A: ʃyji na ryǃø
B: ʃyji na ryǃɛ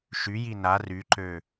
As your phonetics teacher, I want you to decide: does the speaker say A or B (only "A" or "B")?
A